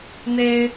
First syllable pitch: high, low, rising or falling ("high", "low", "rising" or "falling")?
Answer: high